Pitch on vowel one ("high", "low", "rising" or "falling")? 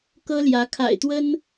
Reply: high